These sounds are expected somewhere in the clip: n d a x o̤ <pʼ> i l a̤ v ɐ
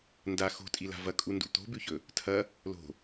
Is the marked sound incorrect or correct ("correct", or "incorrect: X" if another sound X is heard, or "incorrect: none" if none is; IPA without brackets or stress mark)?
incorrect: tʼ